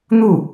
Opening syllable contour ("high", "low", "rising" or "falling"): falling